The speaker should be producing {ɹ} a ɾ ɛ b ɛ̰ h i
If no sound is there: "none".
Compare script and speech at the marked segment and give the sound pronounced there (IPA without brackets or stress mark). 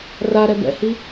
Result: r